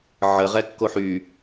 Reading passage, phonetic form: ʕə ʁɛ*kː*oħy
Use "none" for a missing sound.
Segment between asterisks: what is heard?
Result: kː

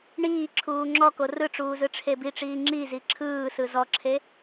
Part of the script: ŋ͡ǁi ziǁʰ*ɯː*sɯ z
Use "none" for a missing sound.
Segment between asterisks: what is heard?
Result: ɯː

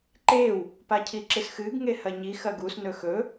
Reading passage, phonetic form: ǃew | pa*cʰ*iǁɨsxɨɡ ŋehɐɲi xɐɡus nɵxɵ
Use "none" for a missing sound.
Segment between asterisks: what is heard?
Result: cʰ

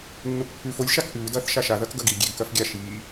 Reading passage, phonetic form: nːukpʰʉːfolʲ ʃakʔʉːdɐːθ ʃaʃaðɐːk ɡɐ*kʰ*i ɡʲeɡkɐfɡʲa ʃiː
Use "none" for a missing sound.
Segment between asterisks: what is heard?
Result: ɡ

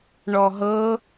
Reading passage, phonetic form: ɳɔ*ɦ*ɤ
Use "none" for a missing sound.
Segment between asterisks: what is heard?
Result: ɦ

